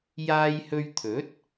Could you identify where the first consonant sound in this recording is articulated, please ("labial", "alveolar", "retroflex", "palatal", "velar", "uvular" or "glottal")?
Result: palatal